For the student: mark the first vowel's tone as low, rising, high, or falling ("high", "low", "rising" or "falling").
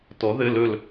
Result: rising